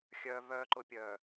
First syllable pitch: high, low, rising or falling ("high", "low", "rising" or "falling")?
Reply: low